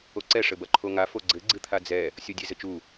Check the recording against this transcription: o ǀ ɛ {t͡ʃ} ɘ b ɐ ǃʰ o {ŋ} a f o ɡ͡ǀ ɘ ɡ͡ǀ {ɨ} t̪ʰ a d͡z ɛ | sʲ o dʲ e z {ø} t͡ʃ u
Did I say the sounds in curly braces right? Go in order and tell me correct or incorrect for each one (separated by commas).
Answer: incorrect, correct, correct, incorrect